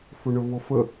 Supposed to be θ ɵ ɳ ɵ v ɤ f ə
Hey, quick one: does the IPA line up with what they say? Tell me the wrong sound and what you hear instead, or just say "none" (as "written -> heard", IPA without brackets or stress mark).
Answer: θ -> f